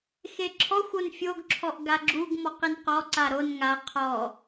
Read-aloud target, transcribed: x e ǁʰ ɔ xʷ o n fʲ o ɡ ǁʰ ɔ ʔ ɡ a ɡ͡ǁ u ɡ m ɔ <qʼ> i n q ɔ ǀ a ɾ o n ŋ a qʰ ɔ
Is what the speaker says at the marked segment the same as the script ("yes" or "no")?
no